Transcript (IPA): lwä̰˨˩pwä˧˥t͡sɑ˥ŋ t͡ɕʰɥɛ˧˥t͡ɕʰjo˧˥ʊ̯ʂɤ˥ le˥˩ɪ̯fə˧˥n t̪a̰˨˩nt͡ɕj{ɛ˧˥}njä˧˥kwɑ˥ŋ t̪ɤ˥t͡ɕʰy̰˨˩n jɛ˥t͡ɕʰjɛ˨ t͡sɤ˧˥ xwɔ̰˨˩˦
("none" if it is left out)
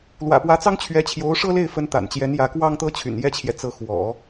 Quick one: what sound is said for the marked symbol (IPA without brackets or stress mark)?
ɛ˧˥